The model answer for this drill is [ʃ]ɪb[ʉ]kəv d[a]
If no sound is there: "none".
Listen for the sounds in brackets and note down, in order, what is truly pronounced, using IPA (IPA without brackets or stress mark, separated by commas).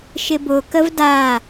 ʃ, ʊ, a